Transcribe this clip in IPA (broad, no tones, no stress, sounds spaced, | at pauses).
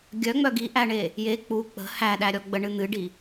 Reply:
ɡʲ œ ŋ͡m œ ɡ i ʔ æ ɳ e | j e k͡p u k͡p ə̤ h æ ɗ æ ɾʲ ɔ ɡ͡b ə ɳ ɨ n̪ ɨ ɖ i